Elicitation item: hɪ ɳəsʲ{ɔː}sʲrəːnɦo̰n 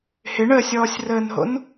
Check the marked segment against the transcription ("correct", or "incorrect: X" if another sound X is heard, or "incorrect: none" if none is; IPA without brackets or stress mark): correct